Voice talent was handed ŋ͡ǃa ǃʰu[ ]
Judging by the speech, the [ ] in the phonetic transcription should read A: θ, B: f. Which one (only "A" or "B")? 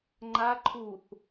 A